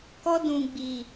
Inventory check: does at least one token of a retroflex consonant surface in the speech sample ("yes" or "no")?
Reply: no